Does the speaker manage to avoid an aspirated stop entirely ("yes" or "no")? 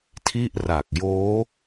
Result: no